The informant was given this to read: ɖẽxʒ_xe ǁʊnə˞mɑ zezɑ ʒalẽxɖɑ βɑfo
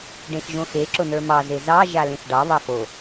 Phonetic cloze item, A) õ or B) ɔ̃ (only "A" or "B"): A